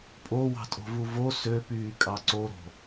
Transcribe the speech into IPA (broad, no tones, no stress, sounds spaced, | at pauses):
pʼ o w ɑ̤ tʼ o̤ v u v o s ø p yː kʼ ɑ ǀ o ɾ o̤